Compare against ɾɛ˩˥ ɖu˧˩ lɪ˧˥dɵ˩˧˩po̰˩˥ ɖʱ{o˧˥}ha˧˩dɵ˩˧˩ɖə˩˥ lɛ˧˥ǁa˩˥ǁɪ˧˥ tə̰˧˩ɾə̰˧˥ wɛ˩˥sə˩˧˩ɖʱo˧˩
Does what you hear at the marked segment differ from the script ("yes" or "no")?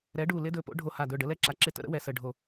yes